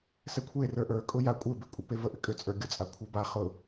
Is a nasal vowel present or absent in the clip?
absent